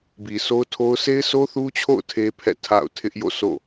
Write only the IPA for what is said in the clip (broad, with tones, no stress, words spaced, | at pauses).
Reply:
bi˨so˦ʊ̯tʰo˦ʊ̯ sʰe˦ɪ̯sʰo˦θu˦t͡ɕʰo̰˦˨ʊ̯ tʰe˦pʰɛ̰˦˨ tʰa̰˦˨ʊ̯tʰɪ˦ʔ jo̰˦˨sʰo̰˦˨